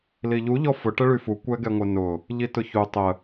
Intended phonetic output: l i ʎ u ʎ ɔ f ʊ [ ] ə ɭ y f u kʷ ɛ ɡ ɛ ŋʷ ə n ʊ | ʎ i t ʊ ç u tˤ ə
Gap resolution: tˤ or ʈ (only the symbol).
ʈ